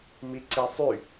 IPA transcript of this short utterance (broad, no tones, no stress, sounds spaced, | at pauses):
m i ǀ i sˤ y